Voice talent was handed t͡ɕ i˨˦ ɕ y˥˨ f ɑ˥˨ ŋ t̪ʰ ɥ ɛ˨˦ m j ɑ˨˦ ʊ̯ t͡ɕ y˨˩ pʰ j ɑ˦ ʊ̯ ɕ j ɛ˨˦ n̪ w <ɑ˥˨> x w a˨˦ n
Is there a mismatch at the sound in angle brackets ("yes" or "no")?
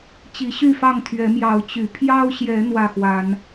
yes